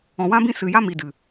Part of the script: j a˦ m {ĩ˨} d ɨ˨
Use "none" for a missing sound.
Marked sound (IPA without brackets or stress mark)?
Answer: i˨